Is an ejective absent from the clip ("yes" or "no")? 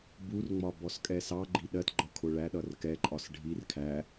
no